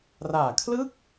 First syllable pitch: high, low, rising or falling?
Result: low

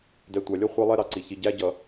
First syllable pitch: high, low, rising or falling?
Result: low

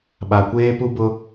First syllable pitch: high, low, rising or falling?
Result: low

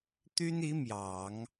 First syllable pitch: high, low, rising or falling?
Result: high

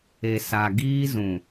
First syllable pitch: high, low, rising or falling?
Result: low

